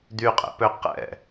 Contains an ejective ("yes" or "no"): yes